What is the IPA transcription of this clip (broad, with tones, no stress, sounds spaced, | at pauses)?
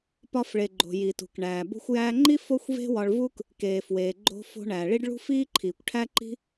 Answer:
p ɒ˧ f ɭ e˩ ɡ͡ǃ o̤˩ j i˩ t ṳ˩ k ɳ æː˩ b o̤˧ xʷ j æː˧ ŋ͡ǃ i˥ f o˥ xʷ v e̤˥ w ɒ˧ ɭ v u˥ k | k eː˩ f w eː˩ ɡ͡ǃ o̤˧ f o̤˧ ɳ æː˩ ɭ i˥ ɖ ɭ ṳ˥ f iː˥ ǃʰ iː˩ kʷ ʈʰ æ˥ ǃ i̤˥